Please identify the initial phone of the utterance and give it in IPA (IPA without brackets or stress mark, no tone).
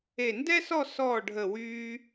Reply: e